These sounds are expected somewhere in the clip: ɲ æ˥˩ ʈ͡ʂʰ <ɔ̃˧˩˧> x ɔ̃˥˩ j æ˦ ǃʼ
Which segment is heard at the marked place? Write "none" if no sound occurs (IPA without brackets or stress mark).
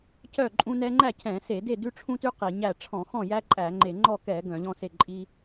ɔ̃˧˩˧